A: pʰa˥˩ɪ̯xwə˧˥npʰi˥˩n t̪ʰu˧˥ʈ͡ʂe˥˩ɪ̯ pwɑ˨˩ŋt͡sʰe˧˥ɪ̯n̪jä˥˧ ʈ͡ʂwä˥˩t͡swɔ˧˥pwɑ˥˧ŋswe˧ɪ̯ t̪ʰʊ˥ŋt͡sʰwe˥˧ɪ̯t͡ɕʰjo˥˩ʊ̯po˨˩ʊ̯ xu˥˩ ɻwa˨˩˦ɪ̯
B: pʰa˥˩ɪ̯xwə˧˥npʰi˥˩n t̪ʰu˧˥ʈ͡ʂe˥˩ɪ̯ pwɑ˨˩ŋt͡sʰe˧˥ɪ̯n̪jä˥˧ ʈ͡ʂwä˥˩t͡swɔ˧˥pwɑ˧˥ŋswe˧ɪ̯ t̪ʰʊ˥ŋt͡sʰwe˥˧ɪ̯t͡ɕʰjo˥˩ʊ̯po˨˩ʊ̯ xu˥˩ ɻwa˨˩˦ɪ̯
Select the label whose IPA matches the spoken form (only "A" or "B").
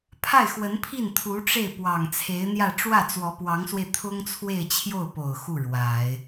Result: B